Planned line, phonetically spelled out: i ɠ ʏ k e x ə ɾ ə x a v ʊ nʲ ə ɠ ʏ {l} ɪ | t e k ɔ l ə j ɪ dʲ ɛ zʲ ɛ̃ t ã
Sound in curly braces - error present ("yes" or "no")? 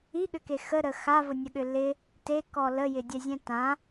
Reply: no